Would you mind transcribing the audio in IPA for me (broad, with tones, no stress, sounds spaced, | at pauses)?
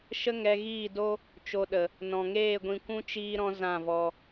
ʃ ə˦ ŋ ɛ˧ ɣ iː˦˨ d o˦ | t͡ʃ o˧ ɗ ə˨ | n ɔ̃˨ ŋ eː˦˨ ɡʷ ĩ˧ kʷ ũ˦ t͡ʃ iː˦ ɾ ɔ̃˦ z ã˦˨ v ɔ˧